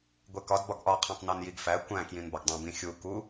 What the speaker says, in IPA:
ɡʷ e k ɒ d b ɒ ɡ ʔ ɒ qʰ ẽ tˤ n æ n j i ɡ f æ kʷ æ̃ k j ĩ n b ɒ ɡ dˤ ũ b ĩ xʲ u k u

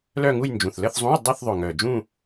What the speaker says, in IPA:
l œ˥˧ ŋ u˥˧ j n d͡ʒ ũ˨˩ θ l ə˥˧ θ zˤ ũ˧˥˧ j dˤ e˥˧ θ ðˤ ø˨˩ ŋ œ˨˩ d͡ʒ ũ˥˧

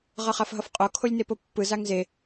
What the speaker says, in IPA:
ʁ ʌ χ a f ɦ ʌ f qʼ o kʰ o lʲ n e p o pː ɯ z a ŋ z e

